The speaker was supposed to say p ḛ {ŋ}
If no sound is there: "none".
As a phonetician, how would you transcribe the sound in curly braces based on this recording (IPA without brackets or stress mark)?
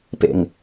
ŋ